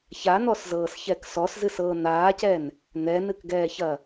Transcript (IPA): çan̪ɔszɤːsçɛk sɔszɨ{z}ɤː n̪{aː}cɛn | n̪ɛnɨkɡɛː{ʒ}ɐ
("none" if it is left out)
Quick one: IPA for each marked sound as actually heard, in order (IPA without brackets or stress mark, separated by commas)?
s, aː, ç